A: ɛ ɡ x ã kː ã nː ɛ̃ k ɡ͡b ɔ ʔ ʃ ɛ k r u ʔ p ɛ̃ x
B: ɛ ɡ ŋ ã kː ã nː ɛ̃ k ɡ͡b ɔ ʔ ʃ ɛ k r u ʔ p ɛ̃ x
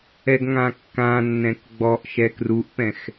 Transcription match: B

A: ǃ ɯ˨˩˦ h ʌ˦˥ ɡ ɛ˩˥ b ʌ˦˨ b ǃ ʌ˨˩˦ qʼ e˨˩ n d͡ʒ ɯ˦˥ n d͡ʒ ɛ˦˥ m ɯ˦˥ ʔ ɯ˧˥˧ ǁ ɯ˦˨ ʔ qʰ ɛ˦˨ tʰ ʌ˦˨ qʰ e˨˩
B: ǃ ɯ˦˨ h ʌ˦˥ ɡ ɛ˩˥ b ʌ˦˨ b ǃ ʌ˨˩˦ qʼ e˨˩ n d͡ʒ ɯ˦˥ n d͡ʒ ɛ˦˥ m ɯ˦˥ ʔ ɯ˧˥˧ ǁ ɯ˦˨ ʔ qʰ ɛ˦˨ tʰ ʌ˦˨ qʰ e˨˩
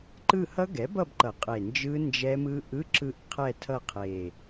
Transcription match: B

